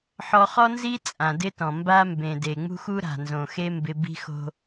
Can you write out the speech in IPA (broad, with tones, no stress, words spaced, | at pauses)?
ħɔ˨χɔ˦nzi˦ t͡sʼã˨dɪ˦tɔ̃˨ mba˦mbẽ˨ de˨ŋ͡mṳ˦xu˦ɾa̤˨ nzõ˨xe˦ mbɪ˦ bi̤˦xo̤˦